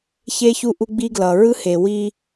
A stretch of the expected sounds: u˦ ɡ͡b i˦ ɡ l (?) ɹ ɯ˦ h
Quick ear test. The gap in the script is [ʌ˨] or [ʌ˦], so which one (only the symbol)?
ʌ˨